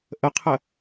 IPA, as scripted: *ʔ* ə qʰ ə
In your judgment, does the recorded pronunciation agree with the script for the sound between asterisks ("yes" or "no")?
yes